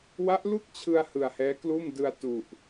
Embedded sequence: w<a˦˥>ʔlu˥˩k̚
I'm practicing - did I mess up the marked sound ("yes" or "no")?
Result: no